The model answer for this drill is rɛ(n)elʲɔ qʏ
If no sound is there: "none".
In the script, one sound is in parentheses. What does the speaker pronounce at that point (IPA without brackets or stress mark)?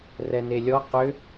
n